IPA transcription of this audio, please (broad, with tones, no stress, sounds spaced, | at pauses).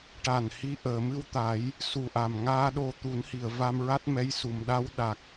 ʈ a˨˩ n h i˧ ʔ əː˨˩˨ m ɨ˧ w t̪ a˨˩˦ j | s u˨˩ ʔ a˨˩ m ŋ aː˧ ɗ o˧ t̪ u˨˩˦ n h i˨˩˨ ə̯ v a˧ m ɹ a˦˥ t̚ m ɛ˧˥ j s u˨˩˨ m ɗ a˧˥ w ɗ a˨˩ k̚